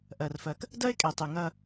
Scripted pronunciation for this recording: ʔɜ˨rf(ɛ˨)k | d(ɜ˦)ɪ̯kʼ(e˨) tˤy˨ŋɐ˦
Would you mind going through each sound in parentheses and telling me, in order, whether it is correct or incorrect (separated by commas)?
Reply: incorrect, correct, correct